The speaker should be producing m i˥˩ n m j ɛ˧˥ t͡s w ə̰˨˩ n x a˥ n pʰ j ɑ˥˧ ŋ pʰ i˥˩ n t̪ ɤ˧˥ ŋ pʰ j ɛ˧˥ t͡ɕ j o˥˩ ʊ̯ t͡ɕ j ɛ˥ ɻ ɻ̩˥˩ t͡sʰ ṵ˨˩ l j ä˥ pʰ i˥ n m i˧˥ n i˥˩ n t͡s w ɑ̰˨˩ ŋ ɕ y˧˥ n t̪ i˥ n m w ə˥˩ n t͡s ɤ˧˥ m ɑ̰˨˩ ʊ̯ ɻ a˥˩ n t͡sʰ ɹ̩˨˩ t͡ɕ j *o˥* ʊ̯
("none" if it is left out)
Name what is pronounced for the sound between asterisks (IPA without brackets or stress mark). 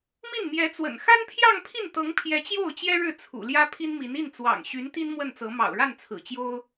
o˥